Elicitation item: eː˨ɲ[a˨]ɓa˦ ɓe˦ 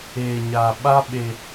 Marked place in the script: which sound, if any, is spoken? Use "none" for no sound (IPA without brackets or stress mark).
a˨